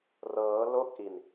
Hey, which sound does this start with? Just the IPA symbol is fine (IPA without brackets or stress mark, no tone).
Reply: r